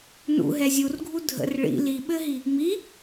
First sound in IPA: n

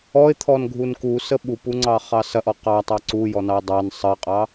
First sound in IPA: ɔ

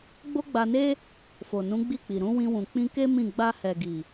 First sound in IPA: ɡ͡b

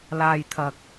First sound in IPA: l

